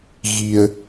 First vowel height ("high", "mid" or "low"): high